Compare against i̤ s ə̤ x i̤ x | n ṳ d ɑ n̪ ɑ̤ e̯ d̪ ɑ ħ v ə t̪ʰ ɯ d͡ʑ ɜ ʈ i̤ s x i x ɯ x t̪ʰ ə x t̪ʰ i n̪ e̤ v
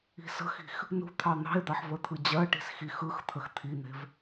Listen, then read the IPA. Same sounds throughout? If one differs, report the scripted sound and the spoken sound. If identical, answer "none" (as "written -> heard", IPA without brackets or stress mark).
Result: d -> t̪ʰ